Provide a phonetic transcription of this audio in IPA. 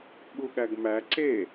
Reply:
ɓ u ɠ æ ɡ m æ ǀ e

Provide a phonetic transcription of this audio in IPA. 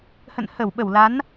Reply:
h ə̰˧˨ n h ə˧˩ w ɓ ə˧˩ w l a˨˦ n

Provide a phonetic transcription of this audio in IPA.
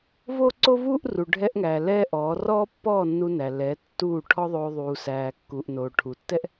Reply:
v oː˦ ǀ o˦ v uː˦ ʔ r u˨ ɖʱ ɛ˧ ʔ ŋ æː˨ l ɛː˦ ʔ ɔː˨˦ r ɔː˦ pː ɔː˦˨ nː u˧ n æ˨ l ɛ˨˦ tː uː˦˨ ʈʰ ɔ˦ ðˤ oː˧ ðˤ uː˨ s æː˨ kː uː˨ ʔ n oː˨ ʈʰ u˨ tː ɛ˦ ʔ

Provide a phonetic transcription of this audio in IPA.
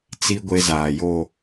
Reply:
t͡s i˦ ɡʷ e˦ z aː˨ j o˦˨

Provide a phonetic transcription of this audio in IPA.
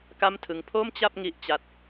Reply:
k a˥˩ m tʰ ɯ˦˥ ŋ pʰ o˥˩ m t͡ɕ a˥˩ p̚ ŋ i˦˥ ʔ t͡ɕ a˦˥ t̚

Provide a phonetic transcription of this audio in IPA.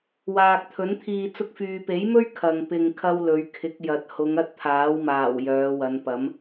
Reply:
w aː˨ k̚ t̪ʰ ɵ˨˥ n t̪ʰ iː˧ t͡s ʊ˧ k̚ f yː˨ p e˨˥ j m ɵ˥ ɥ kʰ ɐ˨ ŋ p ɪ˧ ŋ kʰ ɐ˥ w l ɵ˨˧ ɥ kʰ ɪ˨˥ k̚ j ɐ˨˥ t̚ h ʊ˨˧ ŋ ɐ˥ t̚ t̪ʰ aː˨˥ w m aː˨˩ w j œː˨˧ w ɐ˨˧ n p ɐ˨˥ m

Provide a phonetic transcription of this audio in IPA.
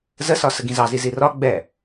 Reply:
z ə s ɒ s ə ɡ ĩ z ɑ z i z i r ɒ ɡ͡b ɛ

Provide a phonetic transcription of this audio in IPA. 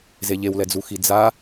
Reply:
z e ʎ e w l ɛ d͡z u x i d͡z a

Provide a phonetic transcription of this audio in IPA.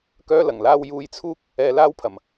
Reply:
k œː˥ l ɐ˨˩ ŋ l aː˥ w j uː˧ j t͡sʰ uː˥ k̚ | ɛː˧ l aː˥ w pʰ ɐ˨˩ m

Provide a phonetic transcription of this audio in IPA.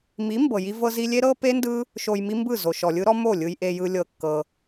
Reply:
m i˨˦ m b ɤ˨ j i˦ v ɤ˧ z i˧ lʲ e˦ ɾ ɤ˦ p e˦ n d ɯ˦ | ʃ o˧ j m i˦ m b ɯ˦˨ z o˨ ʃ ɔ˨ lʲ ɯ˦ ɾ ɔ˦ m o˦˨ lʲ ɯ˧ j ʔ e˧ j ɯ˧ lʲ ɤ˧ kː ɤ˧

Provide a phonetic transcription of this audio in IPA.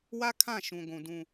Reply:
w a˦ kʰ ã˦˨ ʃ ũ˨ ɡʷ ũ˨ d ũ˨

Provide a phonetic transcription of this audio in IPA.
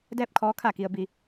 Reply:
d ɛː˥˨ p̚ kʰ ɔː˧˥ kʰ a˧˩ k i˩ ə̯ b i˩

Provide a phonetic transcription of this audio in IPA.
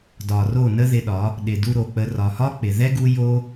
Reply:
d ɒ˨ r o˦˨ n ə˦ ð ɪ˧ ɗ ɒ˨˦ | ɗ ɪ˨ d u˧ ɾ o˨ k͡p ə˧ r ɒ˨ h ɒ˦ k͡p ɪ˨ ð ɛ˦ ɡ u˦ j o˦

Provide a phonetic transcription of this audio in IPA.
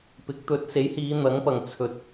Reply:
p ɪ˨˥ k̚ t̪ ɵ˨˥ t̚ s e˨˥ j h iː˨˧ n̪ ɐ˨˥ ŋ p ɐ˨ ŋ t͡sʰ ɵ˨ t̚

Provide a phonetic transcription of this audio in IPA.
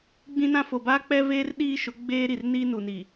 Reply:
ɡ͡b ĩ˦ n ã˦ f o˨ b aː˦ k͡p ɛ˦ v eː˦ r ɗ iː˦ ʃ ʊ˨˦ ɡ͡b eː˦ ɾ i˨ r n iː˦ n u˨ n i˨

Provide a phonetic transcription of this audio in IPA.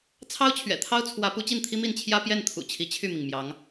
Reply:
t͡sʰ ɑ˥ ʊ̯ t͡ɕʰ ɥ ɛ̰˨˩ t̪ʰ ɑ˥ ʊ̯ t͡sʰ w ä˧˥ p u˧˥ t͡ɕ i˥˩ n t̪ʰ i˥ m i˥˩ n t͡ɕʰ j ä˥ p j ɛ˥˩ n t̪ʰ ṵ˨˩ t͡ɕʰ i˧˥ t͡ɕʰ y˥˩ m i˩ ŋ m j ɑ˧˥ ŋ

